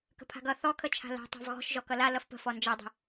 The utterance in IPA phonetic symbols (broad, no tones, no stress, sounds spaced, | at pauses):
k ə̤ pʰ a̤ ɡ ʌ θ ɔ kʰ ə t͡ʃʰ a̤ l a̤ tˤ a̤ v ɣ ɔ̤ ʃ ʒ ɔ k ʌ l a l ʌ f p ə̤ f ɔ n d͡ʒ ʌ dˤ ə̤